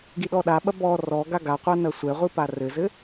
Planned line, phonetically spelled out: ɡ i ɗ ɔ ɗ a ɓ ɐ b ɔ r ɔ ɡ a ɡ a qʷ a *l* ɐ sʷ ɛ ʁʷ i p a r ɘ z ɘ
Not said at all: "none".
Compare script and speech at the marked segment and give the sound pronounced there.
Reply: n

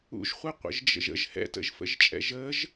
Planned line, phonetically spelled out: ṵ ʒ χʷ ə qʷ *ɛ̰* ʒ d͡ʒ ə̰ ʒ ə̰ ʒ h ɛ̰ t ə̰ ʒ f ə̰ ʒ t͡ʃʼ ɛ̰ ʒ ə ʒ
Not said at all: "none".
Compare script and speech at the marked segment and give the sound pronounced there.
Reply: ə̰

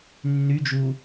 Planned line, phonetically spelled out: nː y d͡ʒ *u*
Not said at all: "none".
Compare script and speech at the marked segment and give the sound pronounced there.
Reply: u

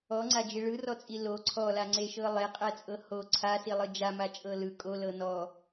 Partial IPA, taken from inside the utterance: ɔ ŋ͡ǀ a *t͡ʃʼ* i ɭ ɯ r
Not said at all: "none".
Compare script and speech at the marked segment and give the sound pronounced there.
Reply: d͡ʒ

